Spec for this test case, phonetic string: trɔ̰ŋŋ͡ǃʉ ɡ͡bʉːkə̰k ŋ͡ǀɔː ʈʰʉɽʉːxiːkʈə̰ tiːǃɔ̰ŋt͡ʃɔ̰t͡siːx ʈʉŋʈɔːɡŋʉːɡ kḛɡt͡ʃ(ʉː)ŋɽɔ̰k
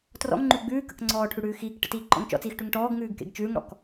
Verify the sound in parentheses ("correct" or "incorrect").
correct